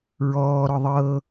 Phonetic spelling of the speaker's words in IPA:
ɹ ɔː ɾ ɔ ðˤ ɤː

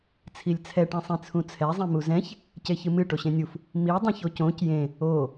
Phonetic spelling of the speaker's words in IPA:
t͡sʰ i lʲ t͡sʰ ɛ ʈ ĩ sˤ ĩ t͡sʰ ũ t͡sʰ ɛ zˤ ĩ m u z ɛ̃ ç | c e ç ɨ m ɨ ʈ o ɕ ẽ nʲ u f | m i dˤ ĩ ç o c õ c j ẽ | o

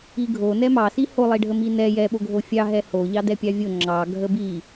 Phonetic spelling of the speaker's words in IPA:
i ɡʱ o n ɛ m ɑ s i h o lˠ i ɖʱ ə m i n ɛ j ɛ ɓ o ɡʱ o fʲ ɑ ɦ ɛ h o ʎ ɑ d ɛ pʲ ɑ vʲ o ŋ͡ǁ ɑ ɡʱ ə b i

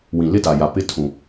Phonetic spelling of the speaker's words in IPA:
w ĩ˨ l ɪ˦ t a˨ j a˨ p ɪ˦ tʰ ũ˨

